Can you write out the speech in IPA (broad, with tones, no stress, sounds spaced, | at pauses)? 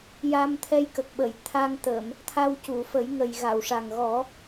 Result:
j a˧ m t̪ʰ ɛ˧ j k ə˨˩ k̚ ɓ ə˨˩˨ j t̪ʰ a˧ ŋ t̪ əː˨˩˨ m | t̪ʰ a˧ w c u˨˩˨ f ə˨˩˦ j ŋ ə˨˩ j ɣ a˨˩˨ w ʂ a˨˩ ŋ ɣ ɔ˨˩˦